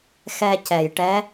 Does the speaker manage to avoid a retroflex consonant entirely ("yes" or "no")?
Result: no